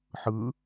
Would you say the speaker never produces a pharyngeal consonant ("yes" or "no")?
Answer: no